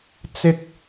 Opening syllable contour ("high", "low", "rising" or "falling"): high